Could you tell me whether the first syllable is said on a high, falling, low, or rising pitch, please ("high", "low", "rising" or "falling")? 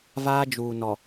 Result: high